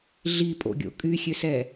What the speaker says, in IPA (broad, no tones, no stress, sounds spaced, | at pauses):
ɮ i pʼ o̰ ɡʲ o̰ kʼ y xʲ ø s ɛ